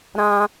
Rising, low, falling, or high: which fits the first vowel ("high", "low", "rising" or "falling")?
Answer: high